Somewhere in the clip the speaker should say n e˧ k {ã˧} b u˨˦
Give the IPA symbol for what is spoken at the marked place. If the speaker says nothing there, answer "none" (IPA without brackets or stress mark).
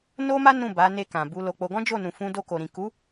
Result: ã˨